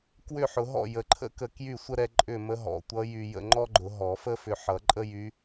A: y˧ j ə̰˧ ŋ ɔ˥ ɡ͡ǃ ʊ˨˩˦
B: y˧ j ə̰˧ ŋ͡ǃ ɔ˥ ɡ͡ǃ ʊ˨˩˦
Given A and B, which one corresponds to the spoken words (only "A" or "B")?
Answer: B